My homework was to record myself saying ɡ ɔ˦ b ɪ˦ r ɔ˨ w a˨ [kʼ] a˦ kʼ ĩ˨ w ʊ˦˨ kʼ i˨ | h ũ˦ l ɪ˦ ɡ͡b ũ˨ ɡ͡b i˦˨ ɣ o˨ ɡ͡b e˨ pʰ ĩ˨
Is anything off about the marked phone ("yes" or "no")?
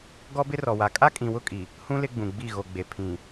no